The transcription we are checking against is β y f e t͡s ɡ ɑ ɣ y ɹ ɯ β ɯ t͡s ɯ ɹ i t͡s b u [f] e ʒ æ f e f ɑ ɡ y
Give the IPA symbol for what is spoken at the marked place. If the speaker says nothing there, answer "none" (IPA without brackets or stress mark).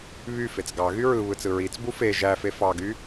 f